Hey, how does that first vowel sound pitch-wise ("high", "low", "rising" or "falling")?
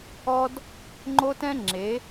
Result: high